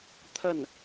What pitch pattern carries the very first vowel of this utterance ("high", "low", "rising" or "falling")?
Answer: falling